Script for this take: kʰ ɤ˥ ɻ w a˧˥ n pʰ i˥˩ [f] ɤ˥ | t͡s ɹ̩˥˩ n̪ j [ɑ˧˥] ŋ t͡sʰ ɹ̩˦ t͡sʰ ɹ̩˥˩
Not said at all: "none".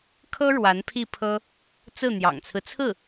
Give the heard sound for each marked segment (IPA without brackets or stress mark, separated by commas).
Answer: pʰ, ɑ̰˨˩